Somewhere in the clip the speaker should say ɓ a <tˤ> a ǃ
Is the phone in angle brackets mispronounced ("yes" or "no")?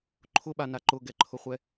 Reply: yes